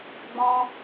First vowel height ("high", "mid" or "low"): mid